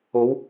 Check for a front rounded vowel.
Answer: absent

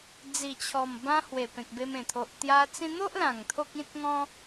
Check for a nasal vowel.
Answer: present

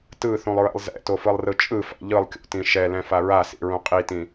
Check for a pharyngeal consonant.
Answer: absent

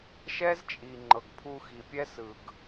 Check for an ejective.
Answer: present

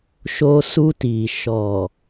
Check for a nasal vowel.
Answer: absent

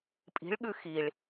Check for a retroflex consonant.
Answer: present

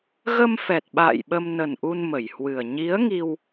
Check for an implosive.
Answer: present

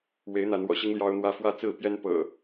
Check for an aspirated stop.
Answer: absent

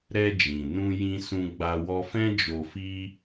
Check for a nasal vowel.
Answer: present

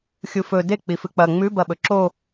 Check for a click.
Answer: present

